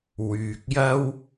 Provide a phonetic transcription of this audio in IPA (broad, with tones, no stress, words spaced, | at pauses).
wyː˨k̚jɐ˥w